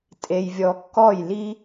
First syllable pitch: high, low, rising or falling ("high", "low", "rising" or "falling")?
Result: low